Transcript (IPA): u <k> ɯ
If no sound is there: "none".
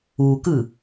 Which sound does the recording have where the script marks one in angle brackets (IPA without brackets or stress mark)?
k